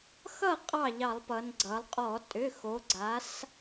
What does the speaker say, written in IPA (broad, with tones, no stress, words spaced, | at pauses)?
xʌ˥˩ qʼɑ˥˩ʎɑ˧˩˧lˠpʌ˩˧n ɡ͡ǀʌ˩˧lˠqʼɔ˧˩˧ tʼʏ˩˧˩xo˩˧ɡ͡ǀa˩˧s